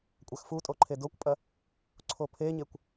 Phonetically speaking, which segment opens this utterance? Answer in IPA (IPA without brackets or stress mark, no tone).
kʷʼ